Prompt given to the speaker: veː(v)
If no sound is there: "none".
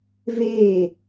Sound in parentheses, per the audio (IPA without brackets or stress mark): none